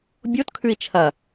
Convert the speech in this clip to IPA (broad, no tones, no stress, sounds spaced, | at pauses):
bʲ o t kʰ ʉ i̯ t͡ʃʰ ɐ